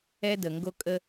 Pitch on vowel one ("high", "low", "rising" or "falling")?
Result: high